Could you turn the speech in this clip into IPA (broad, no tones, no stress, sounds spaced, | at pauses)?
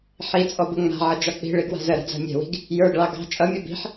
ħ i t͡sʼ ɔ b ə ŋ͡m a̤ ʕ ʌ d͡ʒ ɒ k͡p i̤ ɭ i ɡ w a̤ z ə ɾ a̤ d͡z a̤ mʲ ɛ̤ w i̤ ɡ | j ə˞ ɡ ɭ ɑ ɡ ɑ̤ t͡ʃʼ ʌ mʲ o b i̤ ħ